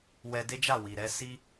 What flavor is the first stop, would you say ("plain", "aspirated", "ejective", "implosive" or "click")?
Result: plain